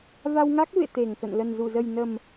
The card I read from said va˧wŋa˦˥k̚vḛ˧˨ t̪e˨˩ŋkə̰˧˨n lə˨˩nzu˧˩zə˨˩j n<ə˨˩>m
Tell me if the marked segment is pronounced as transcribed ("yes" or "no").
yes